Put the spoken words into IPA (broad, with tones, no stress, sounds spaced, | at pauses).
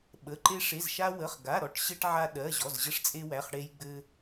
ɓ ə˩˧˩ ǃ e˧ ʂ e˩˧˩ z ʃ a˧ w ə˩˧˩ χ ɡ a˩˧˩ ɾ ɔ˧ ʈ ɕ ɘ˧ ʈ ʕ a˧ ɗ ɜ˩˧˩ ʑ ɔ˩˧˩ z ʑ ə˧ ʂ t͡sʼ e˧ w æ˩˧˩ χ ɽ e˧ j ɡ͡b ɘ˧